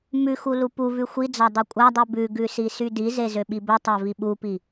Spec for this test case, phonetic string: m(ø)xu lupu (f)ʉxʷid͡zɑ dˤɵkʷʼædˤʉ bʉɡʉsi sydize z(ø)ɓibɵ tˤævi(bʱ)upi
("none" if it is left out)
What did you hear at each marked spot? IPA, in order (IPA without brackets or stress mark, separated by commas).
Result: ʉ, v, ø, ɓ